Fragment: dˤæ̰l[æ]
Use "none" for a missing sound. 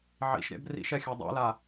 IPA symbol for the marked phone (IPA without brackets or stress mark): a